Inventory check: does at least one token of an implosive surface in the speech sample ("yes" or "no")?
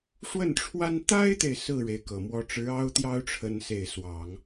no